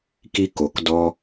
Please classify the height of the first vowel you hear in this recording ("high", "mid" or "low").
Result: high